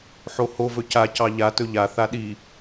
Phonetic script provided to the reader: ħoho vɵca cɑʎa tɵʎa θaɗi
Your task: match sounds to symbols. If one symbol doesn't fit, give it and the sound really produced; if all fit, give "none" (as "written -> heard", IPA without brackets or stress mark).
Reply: none